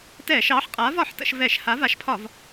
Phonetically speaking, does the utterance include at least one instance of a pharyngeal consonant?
yes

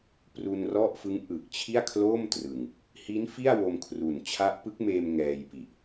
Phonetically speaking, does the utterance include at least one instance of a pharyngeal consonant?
no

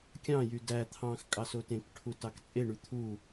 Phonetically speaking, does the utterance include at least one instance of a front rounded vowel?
yes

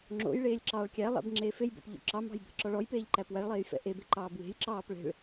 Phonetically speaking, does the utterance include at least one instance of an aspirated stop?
no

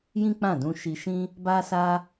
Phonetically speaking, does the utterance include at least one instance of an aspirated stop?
no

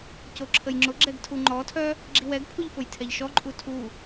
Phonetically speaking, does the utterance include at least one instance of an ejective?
yes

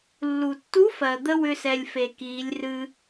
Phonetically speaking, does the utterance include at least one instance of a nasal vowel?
no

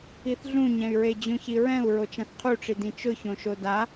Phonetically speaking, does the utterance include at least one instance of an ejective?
no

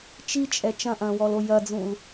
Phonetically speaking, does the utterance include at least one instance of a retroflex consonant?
no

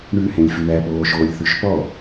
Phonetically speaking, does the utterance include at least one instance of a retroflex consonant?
yes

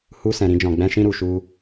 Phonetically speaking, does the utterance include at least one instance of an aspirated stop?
no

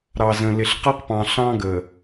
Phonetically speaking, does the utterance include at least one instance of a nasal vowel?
yes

